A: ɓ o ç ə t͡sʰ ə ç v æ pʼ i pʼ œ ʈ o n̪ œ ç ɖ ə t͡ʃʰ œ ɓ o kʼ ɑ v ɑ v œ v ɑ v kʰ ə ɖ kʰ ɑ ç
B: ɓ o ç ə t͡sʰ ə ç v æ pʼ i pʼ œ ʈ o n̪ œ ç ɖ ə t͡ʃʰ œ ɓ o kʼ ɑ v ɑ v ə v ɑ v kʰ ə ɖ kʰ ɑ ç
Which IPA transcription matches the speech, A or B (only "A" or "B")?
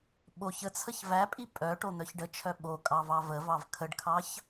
B